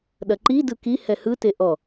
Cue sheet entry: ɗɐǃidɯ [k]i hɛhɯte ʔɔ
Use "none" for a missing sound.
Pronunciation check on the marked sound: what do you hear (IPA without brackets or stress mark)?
k